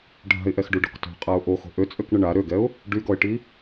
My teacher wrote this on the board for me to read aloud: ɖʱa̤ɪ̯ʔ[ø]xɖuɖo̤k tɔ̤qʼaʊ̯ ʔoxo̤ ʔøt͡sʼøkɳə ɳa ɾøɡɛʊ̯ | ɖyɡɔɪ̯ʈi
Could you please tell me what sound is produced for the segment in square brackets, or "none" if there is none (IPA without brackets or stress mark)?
ɛ